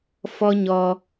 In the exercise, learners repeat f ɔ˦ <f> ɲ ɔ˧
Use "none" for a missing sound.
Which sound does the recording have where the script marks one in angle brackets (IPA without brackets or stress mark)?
none